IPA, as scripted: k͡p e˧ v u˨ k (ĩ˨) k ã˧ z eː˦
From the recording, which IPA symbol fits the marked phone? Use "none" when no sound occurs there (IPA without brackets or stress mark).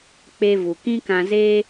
ĩ˦